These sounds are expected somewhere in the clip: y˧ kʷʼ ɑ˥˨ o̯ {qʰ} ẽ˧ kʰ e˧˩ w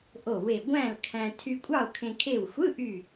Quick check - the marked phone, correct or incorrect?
incorrect